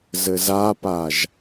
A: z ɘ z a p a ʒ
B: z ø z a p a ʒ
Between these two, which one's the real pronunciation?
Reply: A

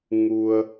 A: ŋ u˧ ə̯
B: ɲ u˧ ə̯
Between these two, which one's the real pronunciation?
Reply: A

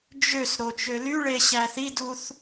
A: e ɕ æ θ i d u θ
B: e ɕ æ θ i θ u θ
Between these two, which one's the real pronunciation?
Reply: A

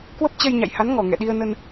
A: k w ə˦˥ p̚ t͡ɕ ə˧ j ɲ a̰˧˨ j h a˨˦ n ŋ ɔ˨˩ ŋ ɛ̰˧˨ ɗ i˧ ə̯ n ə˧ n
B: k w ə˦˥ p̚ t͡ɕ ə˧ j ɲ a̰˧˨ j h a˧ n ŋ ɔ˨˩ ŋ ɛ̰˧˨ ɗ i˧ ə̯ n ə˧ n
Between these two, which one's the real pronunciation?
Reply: A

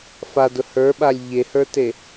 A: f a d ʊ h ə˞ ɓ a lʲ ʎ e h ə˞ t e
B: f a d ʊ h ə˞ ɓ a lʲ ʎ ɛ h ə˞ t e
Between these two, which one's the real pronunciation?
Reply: A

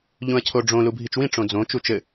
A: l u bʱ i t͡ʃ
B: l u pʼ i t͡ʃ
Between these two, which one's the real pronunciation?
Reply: A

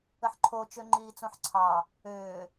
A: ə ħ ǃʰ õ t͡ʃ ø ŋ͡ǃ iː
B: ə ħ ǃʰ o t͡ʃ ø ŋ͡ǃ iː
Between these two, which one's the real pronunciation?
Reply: B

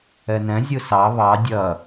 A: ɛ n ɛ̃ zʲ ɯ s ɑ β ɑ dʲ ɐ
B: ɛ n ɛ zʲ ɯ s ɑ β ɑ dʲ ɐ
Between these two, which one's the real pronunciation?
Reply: A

